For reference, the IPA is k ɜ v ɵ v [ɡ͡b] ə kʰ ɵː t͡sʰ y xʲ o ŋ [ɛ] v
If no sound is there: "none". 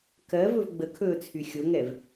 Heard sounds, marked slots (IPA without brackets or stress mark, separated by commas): ɡ͡b, ɛ